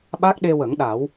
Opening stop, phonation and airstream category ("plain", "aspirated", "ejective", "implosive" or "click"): implosive